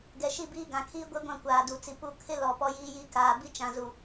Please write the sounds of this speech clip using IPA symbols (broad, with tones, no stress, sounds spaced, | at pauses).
ɡ ɛ˨ ʃ i˦˨ b iː˦ ɡ ã˨ kʰ iː˦ ɡʷ e˦ ɡʷ ã˦˨ kʷ aː˨ d u˨ t͡s i˨ p u˦˨ kʰ ɪ˦ l ɔ˨ p ɔ˦ j iː˦ j i˦ k aː˨ b i˦ t͡ʃ ã˨ z u˨